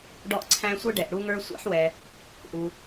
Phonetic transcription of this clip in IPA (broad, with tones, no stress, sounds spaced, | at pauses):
ɖ ɔ˧ ʔ ǀʰ æ̃˧ sʷ ɤ˥ ɖ ɛ˩ ʔ ɽ u˧ ŋ ə˞˧ sʷ a̰˧ ħ w ɛ˩ | ʔ u˩